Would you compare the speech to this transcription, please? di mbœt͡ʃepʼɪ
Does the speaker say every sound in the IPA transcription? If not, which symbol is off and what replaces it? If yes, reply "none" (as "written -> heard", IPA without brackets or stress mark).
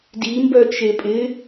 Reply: none